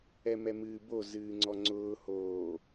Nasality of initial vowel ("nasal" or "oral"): oral